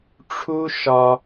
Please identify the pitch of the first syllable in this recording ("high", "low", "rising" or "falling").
high